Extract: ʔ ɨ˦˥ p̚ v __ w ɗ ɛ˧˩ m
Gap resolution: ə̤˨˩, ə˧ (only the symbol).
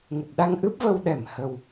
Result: ə˧